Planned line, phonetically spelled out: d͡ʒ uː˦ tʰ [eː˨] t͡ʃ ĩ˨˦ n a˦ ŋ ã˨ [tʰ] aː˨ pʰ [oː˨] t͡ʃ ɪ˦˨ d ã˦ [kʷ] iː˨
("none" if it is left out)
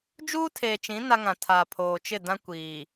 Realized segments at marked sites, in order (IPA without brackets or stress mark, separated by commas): eː˨, tʰ, oː˨, kʷ